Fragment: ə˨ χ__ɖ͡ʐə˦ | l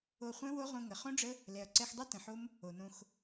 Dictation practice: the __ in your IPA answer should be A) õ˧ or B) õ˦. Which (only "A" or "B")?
B